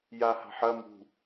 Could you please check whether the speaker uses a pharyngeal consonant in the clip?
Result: yes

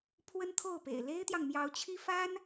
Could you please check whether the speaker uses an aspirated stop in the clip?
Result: yes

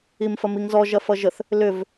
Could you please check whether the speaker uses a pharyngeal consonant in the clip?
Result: no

